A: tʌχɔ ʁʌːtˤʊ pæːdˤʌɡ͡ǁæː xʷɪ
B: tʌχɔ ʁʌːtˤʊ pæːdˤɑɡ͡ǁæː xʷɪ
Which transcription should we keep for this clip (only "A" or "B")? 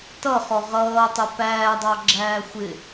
B